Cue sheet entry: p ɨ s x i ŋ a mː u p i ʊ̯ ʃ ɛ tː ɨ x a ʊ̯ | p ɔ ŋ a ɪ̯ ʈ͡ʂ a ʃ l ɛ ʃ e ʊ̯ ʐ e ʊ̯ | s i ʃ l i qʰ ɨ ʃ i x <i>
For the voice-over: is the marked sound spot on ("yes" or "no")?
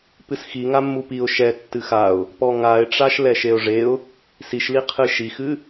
no